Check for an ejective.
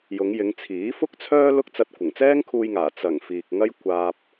absent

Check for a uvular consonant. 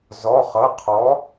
present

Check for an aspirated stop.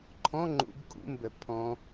present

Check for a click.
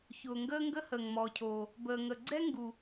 present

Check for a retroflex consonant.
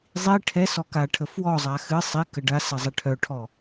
present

